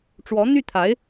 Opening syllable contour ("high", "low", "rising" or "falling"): rising